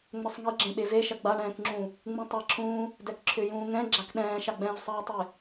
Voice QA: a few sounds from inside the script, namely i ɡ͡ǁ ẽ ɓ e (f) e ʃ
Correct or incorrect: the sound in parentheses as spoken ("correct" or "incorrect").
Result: incorrect